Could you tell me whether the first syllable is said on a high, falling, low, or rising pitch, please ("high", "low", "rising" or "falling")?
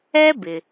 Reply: high